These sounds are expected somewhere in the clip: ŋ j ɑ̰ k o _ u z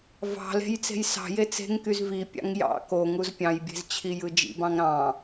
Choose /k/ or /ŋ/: ŋ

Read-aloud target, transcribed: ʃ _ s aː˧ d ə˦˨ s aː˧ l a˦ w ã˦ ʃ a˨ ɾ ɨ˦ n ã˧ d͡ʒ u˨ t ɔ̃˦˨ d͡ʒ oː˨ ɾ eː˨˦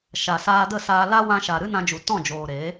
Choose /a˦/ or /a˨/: a˨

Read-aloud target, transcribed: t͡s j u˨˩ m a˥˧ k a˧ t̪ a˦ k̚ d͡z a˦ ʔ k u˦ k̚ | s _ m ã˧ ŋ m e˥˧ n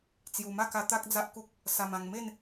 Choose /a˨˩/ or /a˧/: a˧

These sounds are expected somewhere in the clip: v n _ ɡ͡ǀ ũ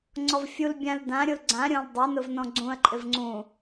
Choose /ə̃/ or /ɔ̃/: ɔ̃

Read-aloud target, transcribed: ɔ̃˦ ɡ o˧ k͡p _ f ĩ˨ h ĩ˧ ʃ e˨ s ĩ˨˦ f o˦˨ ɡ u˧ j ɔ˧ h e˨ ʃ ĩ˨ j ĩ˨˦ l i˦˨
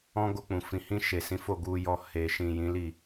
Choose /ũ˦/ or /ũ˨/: ũ˨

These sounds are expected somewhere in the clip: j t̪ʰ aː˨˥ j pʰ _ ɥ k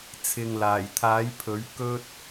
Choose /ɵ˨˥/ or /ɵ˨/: ɵ˨˥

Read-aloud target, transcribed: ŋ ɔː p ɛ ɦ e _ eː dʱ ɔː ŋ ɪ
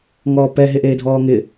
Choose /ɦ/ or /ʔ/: ʔ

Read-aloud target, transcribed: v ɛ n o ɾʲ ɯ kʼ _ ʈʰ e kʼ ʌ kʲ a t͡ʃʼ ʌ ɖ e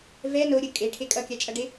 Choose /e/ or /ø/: e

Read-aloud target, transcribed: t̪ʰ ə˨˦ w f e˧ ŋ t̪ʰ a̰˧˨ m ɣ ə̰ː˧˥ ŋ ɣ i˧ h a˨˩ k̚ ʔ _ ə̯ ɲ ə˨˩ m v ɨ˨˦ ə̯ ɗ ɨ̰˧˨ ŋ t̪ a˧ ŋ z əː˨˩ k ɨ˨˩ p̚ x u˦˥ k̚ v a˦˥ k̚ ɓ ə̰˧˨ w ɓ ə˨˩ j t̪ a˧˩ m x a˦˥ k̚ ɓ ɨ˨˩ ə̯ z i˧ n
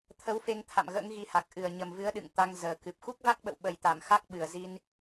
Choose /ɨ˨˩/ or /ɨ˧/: ɨ˨˩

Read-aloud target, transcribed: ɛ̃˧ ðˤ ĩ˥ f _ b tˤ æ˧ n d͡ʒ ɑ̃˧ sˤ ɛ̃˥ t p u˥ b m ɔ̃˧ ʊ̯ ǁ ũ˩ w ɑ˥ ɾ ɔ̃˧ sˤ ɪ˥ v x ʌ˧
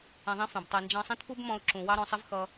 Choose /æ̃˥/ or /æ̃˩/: æ̃˩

